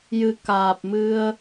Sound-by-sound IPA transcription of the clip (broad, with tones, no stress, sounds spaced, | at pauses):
j ɨ˨˩ k aː˨˩ p̚ m ɨ˧ ə̯